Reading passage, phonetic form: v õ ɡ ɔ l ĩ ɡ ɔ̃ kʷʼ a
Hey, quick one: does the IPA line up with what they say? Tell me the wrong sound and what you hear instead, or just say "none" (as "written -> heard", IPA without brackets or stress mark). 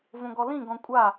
none